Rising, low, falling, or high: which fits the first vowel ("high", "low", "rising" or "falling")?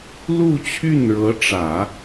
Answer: falling